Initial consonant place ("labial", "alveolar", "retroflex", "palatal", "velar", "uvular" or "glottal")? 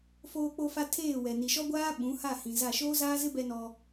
labial